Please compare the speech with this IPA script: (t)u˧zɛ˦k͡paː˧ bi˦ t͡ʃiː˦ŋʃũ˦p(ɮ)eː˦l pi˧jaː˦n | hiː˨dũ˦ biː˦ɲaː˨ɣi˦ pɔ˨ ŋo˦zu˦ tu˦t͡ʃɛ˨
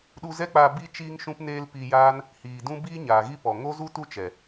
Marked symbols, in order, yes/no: no, no

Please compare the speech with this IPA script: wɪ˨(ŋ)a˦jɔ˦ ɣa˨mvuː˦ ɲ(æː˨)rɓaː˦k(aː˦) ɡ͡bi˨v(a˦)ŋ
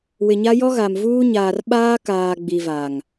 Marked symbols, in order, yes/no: no, no, no, no

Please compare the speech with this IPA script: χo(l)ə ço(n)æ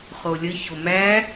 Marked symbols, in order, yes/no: no, no

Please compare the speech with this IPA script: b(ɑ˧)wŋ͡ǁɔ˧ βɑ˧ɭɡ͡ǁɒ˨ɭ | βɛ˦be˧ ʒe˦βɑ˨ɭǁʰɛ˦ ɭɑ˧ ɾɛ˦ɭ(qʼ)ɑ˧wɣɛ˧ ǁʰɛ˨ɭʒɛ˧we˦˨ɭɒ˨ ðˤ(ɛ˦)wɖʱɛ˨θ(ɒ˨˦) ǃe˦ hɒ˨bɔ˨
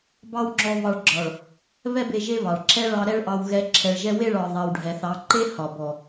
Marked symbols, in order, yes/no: no, no, no, no

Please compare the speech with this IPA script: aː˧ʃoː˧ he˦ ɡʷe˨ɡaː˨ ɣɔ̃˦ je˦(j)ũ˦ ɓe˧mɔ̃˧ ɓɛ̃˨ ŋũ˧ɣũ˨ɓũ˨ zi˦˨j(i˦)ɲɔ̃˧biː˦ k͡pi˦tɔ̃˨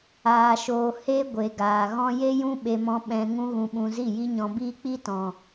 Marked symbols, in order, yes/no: yes, yes

